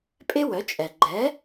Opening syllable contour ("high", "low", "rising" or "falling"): high